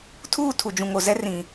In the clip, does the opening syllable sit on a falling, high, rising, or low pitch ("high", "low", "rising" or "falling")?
falling